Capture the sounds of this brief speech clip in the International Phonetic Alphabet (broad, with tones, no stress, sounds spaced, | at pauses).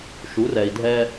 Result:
ʃ u˨˦ r ɛ˨ i̯ dʱ ɛ˦